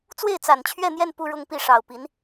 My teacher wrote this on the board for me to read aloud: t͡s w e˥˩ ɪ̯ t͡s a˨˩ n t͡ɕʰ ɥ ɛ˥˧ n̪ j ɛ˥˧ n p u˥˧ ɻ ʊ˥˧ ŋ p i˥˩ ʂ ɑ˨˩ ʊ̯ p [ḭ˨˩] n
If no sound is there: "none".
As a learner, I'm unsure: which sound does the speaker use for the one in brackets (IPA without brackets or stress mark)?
i˧˥